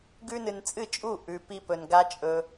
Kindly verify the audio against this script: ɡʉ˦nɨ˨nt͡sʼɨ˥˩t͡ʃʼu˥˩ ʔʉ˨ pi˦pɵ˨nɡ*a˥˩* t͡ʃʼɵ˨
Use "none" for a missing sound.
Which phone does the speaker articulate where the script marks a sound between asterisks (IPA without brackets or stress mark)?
a˦